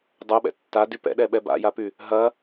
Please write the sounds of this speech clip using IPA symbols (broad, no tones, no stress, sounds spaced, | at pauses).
dˤ o ɓ ɛ̰ tː a d y p ɛ̰ ɗ ɛ ɓ ɛ b a̰ j a p y | ɦ ɐ